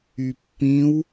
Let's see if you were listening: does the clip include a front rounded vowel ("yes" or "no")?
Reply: yes